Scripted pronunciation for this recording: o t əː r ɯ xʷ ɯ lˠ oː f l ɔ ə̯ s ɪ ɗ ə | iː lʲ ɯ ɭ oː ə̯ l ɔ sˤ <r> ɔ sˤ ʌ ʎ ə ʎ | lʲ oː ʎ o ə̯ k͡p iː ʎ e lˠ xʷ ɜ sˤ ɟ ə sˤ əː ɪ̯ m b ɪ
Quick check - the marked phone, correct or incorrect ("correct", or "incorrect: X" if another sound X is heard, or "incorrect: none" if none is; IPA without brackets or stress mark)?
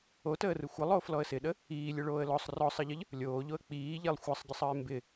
correct